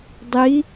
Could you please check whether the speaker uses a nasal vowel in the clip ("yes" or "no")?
no